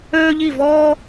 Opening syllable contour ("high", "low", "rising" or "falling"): high